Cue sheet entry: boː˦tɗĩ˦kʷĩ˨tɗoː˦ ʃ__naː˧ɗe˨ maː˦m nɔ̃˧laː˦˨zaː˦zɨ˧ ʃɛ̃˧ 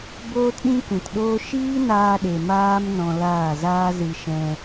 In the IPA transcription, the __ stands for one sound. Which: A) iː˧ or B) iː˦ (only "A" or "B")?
B